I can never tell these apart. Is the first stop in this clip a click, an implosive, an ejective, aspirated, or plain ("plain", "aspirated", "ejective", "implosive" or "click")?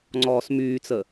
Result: click